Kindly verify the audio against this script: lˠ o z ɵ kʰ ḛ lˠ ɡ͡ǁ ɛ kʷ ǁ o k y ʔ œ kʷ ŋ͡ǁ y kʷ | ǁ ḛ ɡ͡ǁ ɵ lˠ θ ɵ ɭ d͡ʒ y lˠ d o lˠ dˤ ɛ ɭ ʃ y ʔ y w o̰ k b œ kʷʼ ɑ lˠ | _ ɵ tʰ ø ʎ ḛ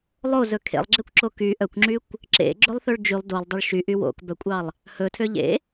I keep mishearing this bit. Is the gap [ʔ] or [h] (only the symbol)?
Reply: h